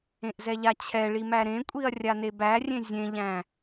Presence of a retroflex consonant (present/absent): present